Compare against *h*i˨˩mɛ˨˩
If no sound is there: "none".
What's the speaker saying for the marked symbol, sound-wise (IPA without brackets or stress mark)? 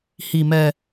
h